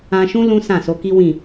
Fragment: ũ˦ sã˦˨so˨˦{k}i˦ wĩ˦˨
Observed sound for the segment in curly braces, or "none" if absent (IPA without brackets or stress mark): k